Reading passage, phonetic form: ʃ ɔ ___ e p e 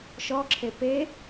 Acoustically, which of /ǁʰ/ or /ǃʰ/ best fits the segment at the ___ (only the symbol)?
ǁʰ